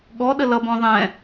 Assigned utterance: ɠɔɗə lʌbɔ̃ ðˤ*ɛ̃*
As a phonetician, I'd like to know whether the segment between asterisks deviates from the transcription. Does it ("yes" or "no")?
no